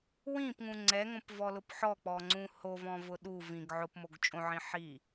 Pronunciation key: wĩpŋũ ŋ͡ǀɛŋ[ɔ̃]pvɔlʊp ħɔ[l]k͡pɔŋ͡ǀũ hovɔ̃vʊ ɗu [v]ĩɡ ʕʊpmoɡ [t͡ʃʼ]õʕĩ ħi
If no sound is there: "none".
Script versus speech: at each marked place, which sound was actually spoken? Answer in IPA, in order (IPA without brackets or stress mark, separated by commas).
õ, none, v, t͡ʃʼ